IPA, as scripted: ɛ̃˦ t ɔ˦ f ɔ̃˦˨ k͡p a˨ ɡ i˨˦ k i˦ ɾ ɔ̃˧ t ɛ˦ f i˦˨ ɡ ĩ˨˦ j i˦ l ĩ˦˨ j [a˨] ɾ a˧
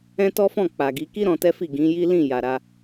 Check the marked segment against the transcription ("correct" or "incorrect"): correct